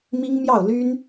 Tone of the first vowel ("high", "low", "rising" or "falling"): high